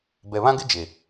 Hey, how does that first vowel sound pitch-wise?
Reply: low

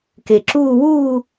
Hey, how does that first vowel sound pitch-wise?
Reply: low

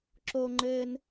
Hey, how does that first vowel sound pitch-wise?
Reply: high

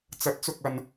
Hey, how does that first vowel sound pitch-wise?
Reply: rising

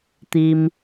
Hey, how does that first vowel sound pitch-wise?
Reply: low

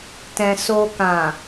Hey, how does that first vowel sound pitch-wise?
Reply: low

